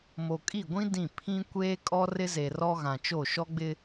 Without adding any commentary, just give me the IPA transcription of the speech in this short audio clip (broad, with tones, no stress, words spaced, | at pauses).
mo˨kʼi˦˨ɡʷĩ˦ dĩ˦˨ pʰĩ˦ kʷeː˦ kʼɔ˦rɪ˦ze˨ rɔ˦ ɣã˨t͡ʃo˦˨ ʃɔ˦ɡ͡bɪ˦